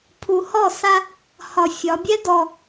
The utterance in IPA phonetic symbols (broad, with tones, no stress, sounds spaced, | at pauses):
pʰ u˨˩ h ɔ˥˩ s a˧ | h ɒ˨˩ fʲ ɒ˩˧ bʲ ɛ˦˥ d ɔ˨˩